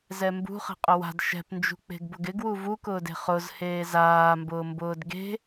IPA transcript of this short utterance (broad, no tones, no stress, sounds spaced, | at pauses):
z ɛ m b ṳ χ ɛ̤ qʼ ʊ w a̤ d ʃ ɛ̤ p n d͡ʒ ṳ k͡p e̤ ɡ b ʊ ɡ ɪ ɡ w u v u k ʊː d e̤ χ ʊ z h eː z aː m b ʊː m b ʊː d ɡ e̤